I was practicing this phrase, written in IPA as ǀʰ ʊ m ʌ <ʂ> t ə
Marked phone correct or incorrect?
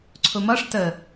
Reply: correct